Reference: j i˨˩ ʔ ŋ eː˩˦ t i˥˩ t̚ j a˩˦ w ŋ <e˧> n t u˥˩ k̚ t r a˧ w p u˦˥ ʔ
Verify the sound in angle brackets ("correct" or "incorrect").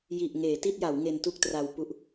correct